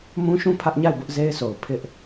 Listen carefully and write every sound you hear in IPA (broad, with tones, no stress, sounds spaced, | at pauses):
m ũ˦ ʃ ũ˦˨ pʰ ä˦ ʔ ɲ a˦˨ ɪ̯ b ʊ˦ ʔ z e˦ ɪ̯ s o˨ ʊ̯ pʰ ɪ˦ ʔ